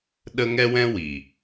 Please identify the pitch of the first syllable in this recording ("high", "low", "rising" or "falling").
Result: high